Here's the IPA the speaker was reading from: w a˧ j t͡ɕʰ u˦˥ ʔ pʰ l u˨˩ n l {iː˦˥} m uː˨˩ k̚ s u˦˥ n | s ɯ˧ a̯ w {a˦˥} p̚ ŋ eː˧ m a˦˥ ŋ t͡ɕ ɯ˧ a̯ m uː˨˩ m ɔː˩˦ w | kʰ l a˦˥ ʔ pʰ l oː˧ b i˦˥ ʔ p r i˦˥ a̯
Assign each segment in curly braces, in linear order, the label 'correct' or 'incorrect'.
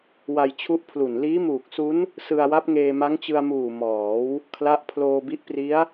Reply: correct, correct

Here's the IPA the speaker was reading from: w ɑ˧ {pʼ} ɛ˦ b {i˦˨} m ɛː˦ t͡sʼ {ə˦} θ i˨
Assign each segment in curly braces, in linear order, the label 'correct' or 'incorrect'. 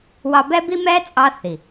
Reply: incorrect, incorrect, incorrect

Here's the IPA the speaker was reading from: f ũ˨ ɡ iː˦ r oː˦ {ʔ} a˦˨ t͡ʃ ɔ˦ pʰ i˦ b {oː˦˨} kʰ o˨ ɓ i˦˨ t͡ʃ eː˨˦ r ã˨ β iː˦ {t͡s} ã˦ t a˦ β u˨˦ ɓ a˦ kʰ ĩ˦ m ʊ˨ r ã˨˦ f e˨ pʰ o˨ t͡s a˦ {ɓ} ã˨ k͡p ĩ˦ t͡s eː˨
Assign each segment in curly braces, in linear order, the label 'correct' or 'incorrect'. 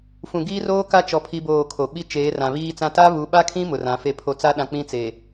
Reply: incorrect, correct, correct, incorrect

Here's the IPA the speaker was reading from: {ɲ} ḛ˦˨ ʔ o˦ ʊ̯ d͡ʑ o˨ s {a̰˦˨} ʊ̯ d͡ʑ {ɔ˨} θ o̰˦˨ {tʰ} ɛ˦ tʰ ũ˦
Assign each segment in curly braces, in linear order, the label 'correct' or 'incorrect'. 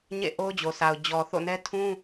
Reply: correct, incorrect, correct, incorrect

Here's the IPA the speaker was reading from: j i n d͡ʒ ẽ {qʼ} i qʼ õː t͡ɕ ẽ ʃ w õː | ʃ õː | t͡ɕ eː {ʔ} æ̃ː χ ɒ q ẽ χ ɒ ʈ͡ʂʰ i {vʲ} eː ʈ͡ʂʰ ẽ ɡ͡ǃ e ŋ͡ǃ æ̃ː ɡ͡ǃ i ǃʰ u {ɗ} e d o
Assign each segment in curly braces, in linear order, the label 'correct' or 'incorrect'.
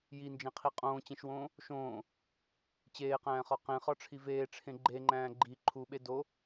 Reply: incorrect, incorrect, incorrect, incorrect

